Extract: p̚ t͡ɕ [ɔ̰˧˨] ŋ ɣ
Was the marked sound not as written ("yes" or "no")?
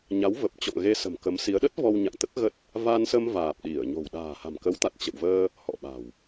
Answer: no